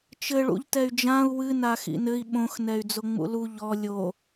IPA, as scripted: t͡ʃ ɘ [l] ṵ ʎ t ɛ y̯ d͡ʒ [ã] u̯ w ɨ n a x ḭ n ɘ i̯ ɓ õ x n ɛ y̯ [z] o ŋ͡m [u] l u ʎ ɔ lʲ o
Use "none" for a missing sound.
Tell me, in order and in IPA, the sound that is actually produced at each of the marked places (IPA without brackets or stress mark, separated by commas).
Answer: ɭ, ã, d͡z, ṵ